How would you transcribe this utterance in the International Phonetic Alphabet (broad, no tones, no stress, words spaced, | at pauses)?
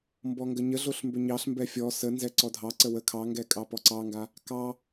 mbɔŋɡəɲəɮoɬ mbʏɲɑɬmbɛ fʲɔ sə nzɛǀɔdʱɑǀə wə kʰɑŋɡɛ kʼɑpɔǀɑŋɡa | kɑ